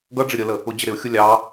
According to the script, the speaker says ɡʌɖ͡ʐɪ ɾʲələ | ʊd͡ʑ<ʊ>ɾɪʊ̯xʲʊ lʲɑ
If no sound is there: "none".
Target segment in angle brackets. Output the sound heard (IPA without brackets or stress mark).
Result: ə